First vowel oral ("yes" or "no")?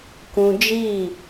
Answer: no